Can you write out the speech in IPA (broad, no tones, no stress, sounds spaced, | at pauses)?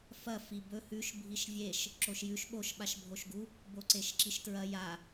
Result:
f ɐ f i b ɵ h ʉ ʃ bʱ i ʃ vʲ e ʃ | ǁ o ʃ j ʉ ʃ ɓ o ʃ ɓ a ʃ bʱ o ʃ ɡ u | b o ǀ e ʃ ǁ i ʃ t ɹ ɐ j a